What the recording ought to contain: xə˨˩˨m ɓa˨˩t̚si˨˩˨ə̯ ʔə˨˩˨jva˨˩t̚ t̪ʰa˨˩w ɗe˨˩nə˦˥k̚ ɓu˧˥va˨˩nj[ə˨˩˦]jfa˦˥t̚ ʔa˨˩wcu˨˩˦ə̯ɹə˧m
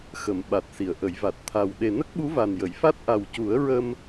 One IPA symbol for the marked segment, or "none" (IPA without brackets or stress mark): ə˨˩˨